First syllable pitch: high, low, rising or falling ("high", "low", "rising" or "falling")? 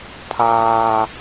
high